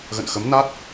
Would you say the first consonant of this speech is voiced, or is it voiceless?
voiced